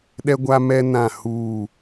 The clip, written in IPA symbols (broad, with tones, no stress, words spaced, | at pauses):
ɗɛ˦ɡʷa˦mɛ˦ nã˦˨huː˦˨